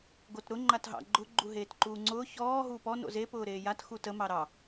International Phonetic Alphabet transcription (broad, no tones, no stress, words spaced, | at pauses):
ɡotɾʊ ŋ͡ǃatɦɑ̰ ɡ͡ǃʊ ɡ͡ǃuɦeːtǃuːŋ͡ǀʊː çɔː ɦuːpɔ no̰ze pʊːɾeːjat xutə mɑɾɑ